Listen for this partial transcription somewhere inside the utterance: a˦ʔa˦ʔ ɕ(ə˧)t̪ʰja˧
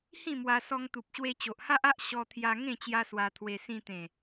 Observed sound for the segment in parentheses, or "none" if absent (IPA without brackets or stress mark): ɔ˧